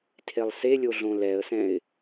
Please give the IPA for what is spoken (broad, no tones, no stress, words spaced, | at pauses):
tʰelˠselʲo ɮõlɛə̯sɛ̃ɪ̯